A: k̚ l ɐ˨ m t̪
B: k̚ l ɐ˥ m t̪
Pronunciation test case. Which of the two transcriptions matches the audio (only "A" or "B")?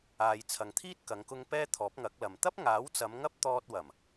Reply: A